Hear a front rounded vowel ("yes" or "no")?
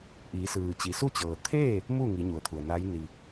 no